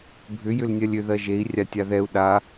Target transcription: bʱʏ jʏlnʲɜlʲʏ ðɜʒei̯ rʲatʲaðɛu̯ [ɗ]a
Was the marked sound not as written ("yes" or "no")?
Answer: no